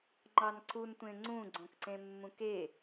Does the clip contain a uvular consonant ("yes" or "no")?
no